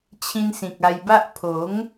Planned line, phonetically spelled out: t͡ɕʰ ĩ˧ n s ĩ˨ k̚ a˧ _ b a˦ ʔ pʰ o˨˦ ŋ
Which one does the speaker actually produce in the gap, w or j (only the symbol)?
j